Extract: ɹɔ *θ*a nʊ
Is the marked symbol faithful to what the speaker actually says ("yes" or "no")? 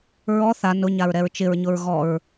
yes